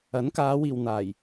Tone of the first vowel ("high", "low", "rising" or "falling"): rising